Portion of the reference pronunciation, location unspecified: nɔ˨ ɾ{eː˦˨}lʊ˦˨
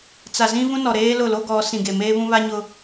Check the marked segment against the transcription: incorrect: eː˦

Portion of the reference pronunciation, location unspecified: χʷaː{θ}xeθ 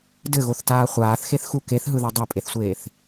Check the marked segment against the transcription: correct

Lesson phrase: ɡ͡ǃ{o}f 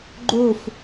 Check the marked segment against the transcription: correct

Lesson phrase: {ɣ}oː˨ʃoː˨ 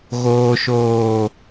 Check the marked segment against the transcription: correct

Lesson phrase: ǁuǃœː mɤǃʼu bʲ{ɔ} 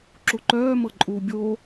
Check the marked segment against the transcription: incorrect: o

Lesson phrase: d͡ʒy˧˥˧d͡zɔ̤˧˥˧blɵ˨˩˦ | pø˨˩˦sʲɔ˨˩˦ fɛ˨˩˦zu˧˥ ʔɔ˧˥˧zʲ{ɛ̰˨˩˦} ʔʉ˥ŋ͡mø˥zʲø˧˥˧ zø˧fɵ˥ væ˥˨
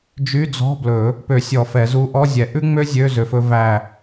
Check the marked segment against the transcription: incorrect: ɛ˨˩˦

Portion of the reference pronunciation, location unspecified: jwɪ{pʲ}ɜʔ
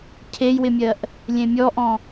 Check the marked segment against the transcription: incorrect: mʲ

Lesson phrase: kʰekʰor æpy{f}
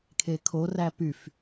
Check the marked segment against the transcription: correct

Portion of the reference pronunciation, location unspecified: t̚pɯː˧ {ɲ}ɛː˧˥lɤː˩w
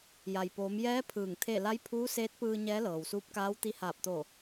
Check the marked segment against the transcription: correct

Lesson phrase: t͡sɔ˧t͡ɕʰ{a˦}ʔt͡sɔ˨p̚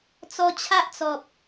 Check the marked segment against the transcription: correct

